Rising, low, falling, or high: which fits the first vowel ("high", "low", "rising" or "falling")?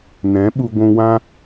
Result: rising